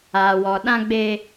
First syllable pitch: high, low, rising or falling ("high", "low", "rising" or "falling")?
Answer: low